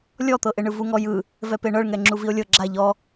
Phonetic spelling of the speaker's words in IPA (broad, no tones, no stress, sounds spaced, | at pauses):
lʲ ɔ t̪ ɤ ʔ e ɳ ɯ v u ŋ ɔ j ɯ | v ɛ p e ɳ ɤ ɭ ŋ ɛ ŋ͡ǁ u v i o̯ lʲ ɤ ɡ͡ǁ a ʎ ɔ